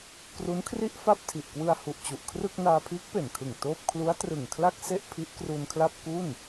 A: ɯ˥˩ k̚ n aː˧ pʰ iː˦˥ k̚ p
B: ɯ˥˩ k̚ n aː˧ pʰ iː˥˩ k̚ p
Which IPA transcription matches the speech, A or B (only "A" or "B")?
A